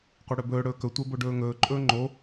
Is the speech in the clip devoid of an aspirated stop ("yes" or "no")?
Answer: yes